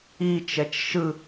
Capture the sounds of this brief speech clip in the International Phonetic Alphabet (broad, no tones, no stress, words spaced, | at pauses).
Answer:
it͡ʃɛt͡ʃ ʃɯ